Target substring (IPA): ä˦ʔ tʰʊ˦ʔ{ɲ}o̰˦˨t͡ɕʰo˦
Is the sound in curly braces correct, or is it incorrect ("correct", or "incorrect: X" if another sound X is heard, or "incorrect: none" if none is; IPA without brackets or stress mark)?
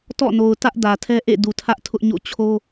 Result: correct